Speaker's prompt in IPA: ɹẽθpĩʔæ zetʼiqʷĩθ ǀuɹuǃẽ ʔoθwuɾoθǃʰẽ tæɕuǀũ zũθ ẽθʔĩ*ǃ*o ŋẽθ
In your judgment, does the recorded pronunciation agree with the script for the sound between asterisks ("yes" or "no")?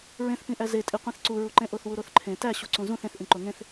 yes